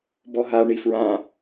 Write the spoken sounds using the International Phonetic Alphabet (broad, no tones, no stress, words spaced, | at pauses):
bɔɦa ɳifɹã